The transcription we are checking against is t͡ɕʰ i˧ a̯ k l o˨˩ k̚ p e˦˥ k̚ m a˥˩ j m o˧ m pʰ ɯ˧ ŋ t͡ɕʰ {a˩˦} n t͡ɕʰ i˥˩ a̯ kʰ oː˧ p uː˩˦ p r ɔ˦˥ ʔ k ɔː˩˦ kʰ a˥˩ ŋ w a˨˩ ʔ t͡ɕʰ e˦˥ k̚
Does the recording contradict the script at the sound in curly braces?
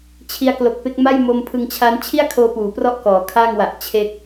yes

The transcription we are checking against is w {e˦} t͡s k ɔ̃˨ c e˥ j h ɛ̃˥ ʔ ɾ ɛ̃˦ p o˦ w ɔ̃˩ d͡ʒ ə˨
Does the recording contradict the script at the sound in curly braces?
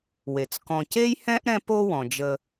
yes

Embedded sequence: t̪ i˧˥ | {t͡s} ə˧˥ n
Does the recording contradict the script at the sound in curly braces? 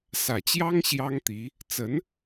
no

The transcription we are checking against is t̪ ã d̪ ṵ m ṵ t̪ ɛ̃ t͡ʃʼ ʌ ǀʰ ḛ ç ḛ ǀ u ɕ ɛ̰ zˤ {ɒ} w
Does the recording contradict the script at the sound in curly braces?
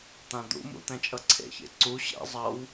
yes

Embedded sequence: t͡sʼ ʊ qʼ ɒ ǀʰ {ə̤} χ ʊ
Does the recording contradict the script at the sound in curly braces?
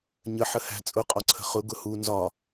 no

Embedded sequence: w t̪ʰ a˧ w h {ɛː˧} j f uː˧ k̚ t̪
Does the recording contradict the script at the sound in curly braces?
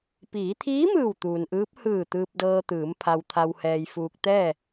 no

